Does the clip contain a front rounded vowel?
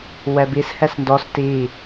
no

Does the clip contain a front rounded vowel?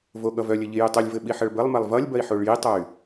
yes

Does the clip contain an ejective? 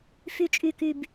yes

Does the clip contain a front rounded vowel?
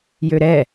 yes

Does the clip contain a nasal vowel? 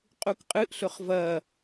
no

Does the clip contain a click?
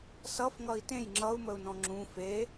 yes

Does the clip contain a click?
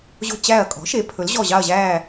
no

